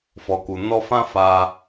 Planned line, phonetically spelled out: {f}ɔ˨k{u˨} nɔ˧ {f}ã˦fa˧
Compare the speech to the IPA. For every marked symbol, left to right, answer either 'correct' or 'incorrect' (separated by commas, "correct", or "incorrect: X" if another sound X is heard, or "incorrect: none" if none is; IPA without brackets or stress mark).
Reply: correct, correct, correct